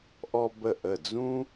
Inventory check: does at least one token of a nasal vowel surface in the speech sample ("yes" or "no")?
yes